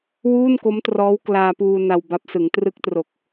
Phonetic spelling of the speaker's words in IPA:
w uː˥˩ n k o˦˥ m t r ɔː˦˥ w k l aː˧ p uː˧ n a˧ w b a˦˥ p̚ s ɯ˩˦ ŋ t r ɯ˦˥ k̚ t r o˨˩ k̚

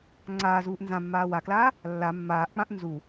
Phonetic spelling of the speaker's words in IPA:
ŋ͡ǀ aː z uː ʔ n z ã mː aː w a k l aː | lː a mː aː ʔ k͡p ã ʔ n z u

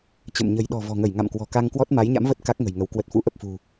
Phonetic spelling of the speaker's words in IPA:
t͡ɕ ə̰˧˨ m ɲ ə̤˨˩ j ɗ ɔ̤˨˩ v ɔ̤˨˩ ŋ ə˧˩ j ŋ a̰˧˨ m k w ɔ̤˨˩ k a˧ ŋ k w ɔ˦˥ t̚ m a˨˦ j ɲ a̰˧˥ m v ə˦˥ t̚ k a˦˥ k̚ ŋ ə̤˨˩ j ŋ ə˨˦ w k w ə˨˩ t̚ f ṵ˧˥ ʔ ə˨˩ p̚ f ṳ˨˩

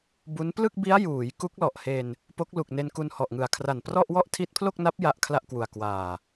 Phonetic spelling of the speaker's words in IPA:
b u˦˥ n p l ɯ˥˩ k̚ b i˦˥ a̯ j uː˩˦ j k u˦˥ k̚ l ɔ˨˩ ʔ h e˧ n | p o˦˥ k̚ l u˨˩ k̚ n e˧ n k u˧ n h ɔ˨˩ ʔ ŋ ɯ˨˩ a̯ kʰ r a˨˩ n p r ɔ˥˩ ʔ w ɔ˥˩ ʔ tʰ i˦˥ t̚ pʰ l o˥˩ k̚ n a˦˥ p̚ j a˦˥ ʔ kʰ l a˥˩ ʔ k w u˨˩ a̯ k w aː˨˩

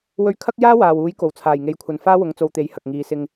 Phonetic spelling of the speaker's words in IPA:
w ɵ˧ ɥ kʰ ɐ˥ k̚ j aː˥ w aː˨ w uː˨˥ j k o˨˩ w t͡sʰ aː˨˩ j ŋ e˨˥ j kʷʰ ɐ˨ n f aː˥ w ʊ˨˥ ŋ t͡s o˧ w t̪ e˨˥ j h ɐ˨ k̚ ŋ iː˨˧ s ɪ˧ ŋ

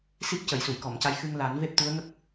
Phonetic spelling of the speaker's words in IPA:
s i˦˥ p̚ c ə˨˩˨ j s u˨˩˨ j k ɔ˨˩˨ m c a˧ j x ɨ˧ ŋ l a˨˩˦ n v e˦˥ p̚ t̪ u˧˥ ə̯ ŋ ə˦˥ k̚

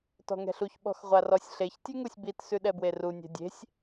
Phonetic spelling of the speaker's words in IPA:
t ɔ̤ ŋ ɛ̤ ɬ u ç ɓ ɔ̤ x ʁʷ a r ɔ sʲ ɬ e ç tʲ ʉ ŋ u sʲ b i t s ʉ ɗ ɛ b w e r u nʲ ɛ̤ dʲ e̤ sʲ

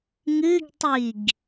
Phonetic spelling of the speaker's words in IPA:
ŋ ɨ ɡ tˤ i ɡ

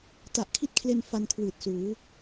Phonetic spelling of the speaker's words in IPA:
t a˨˩ ʔ kʰ i˦˥ t̚ kʰ l e˧ n f a˧ n kʰ w ɯː˨˩ t̚ s uː˩˦

